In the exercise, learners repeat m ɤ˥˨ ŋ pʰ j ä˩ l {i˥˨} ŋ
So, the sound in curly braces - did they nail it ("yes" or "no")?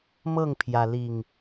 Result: no